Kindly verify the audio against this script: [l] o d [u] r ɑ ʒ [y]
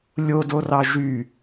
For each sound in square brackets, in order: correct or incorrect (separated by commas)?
incorrect, incorrect, correct